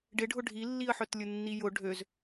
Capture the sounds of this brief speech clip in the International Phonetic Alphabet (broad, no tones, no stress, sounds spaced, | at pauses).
ɖ ɪ ɖʱ ʊ ɖʱ i lː i ə̯ ħ œ t lʲ ʊ nː i j ʊ ɖʱ ø z